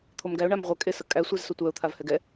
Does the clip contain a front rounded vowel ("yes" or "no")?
yes